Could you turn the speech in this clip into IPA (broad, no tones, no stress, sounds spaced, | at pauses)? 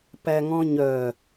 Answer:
p æ ŋ ɔ̃ ɲ œ